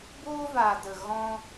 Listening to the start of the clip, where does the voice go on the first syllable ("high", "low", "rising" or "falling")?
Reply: high